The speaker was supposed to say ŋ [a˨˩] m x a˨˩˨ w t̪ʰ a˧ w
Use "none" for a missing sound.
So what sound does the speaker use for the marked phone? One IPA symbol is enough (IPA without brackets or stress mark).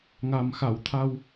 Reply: a˨˩